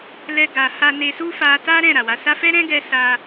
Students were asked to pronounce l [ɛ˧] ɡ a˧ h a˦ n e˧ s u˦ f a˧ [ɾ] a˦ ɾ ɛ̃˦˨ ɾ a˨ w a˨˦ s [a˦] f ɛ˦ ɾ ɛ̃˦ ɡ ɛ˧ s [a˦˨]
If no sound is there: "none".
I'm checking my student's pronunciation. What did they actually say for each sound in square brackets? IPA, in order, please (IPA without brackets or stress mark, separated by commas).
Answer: ɛ˦, t, a˦, a˦